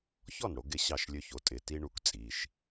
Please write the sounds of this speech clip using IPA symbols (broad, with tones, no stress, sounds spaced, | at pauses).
ç ɔ˥˨ n ɽ o˩˧ ɡ ɪ˥˨ ɕ ɑ˥˨ ʃ lʲ ø˦ ç o˩˧˩ tʼ ɪ˩˧˩ t i˦ ɳ u˦ k t͡sʼ i˩˧˩ ʃ